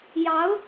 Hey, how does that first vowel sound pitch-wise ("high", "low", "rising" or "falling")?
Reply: rising